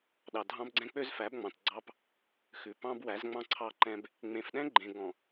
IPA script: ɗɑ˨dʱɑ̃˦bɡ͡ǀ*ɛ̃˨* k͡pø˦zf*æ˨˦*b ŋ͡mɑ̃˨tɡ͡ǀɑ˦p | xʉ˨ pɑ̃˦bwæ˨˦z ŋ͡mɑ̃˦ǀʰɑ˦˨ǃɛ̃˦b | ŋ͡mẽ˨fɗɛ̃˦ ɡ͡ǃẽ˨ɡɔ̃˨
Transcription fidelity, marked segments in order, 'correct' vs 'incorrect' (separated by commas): incorrect, correct